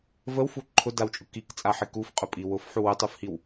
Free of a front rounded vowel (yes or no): yes